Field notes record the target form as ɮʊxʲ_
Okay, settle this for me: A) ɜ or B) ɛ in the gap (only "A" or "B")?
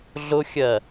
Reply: A